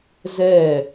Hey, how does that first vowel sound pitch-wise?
falling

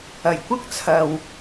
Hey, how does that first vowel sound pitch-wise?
low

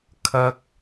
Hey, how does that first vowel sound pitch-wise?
high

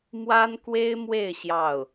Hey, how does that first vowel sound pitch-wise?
high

